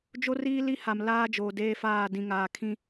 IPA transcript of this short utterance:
d͡ʒ o˦ r iː˦ l i˦ h a˨ m l aː˦ d͡ʒ oː˨ d eː˦ f aː˦˨ d ĩ˨ ŋ aː˨ kʰ ĩ˦

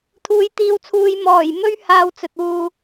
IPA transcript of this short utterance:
t̪ʰ uː˨˥ j t̪ iː˧ w t͡sʰ uː˧ j m ɔː˨˩ j m ɵ˥ ɥ h aː˧ w t͡s ɵ˨ t̚ w uː˧

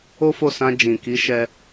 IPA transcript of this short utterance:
o˦ f o˦˨ s ã˧ d͡ʒ ĩ˨ k i˨˦ ʃ ɛ˧

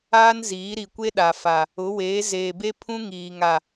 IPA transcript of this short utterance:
aː˦ n z iː˨˦ ɾ i˨ kʷ e˦ ɗ a˨ f a˨ | ʊ˨˦ w eː˨˦ z eː˨ b e˦ pʰ ũ˦ ŋ iː˨ ŋ a˨

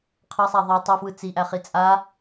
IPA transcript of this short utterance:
qʰ ɐ sˤ a ðˤ i tˤ ɐ f w ɯ t͡s i ʔ æ χ i t͡sʼ a

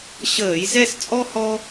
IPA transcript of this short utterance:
ɕ əː˧˩˧ j z ɛ˥˧ s t͡sʼ ɔ˥ h ɔ˥

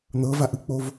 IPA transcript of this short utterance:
n̪ ɤ v a ʔ ɯ k͡p o v

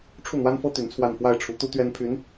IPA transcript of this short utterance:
ʈ͡ʂʰ u˥˩ n̪ w a˥ n f ɤ˥ t̪ y˧˥ n t͡sʰ w a˥˧ n f w a˥˩ ɪ̯ ʈ͡ʂʰ u˧˥ t̪ u˥ t̪ ɥ ɛ˥ n pʰ y˧˥ n

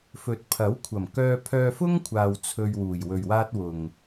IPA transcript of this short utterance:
f ɵ˨ t̚ pʰ ɐ˨˥ w kʷʰ ɐ˨˩ m k œː˧ pʰ œː˧ f ʊ˥ ŋ kʷʰ aː˨ w t͡sʰ ɵ˧ ɥ w uː˨˩ j w ɵ˨˩ ɥ w aː˥ t̚ w ʊ˨˩ ŋ

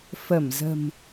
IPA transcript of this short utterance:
f ə˧˩ m z ə̤˨˩ m

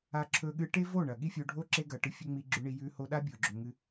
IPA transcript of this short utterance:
a˧ ǁʰ ɵ˧ ɠ ɨ˧ ʈ e˦ v o˦˨ ɳ ɐ˨ ɠ i˦ fʲ o˧ ɖʱ o˦ ǁ e˦ ɡ ɐ˨ ʈ ɨ˧ fʲ ɵ˦ ŋ͡m i˧ ɡ͡ǁ ʉ˧ ɳ i˧ j ʉ˧ h o˧ ɗ a˦ bʲ o˨ ɡ͡ǁ ɵ˨ ŋ ɨ˧

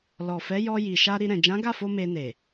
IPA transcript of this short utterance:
l ɔ˨ f ɛ˨˦ j ɔ˧ j i˨ ʃ a˧ ɾ i˧ ɾ ɛ̃˨ d͡ʒ ã˨˦ ɡ a˦˨ f o˧ m e˧ n e˨

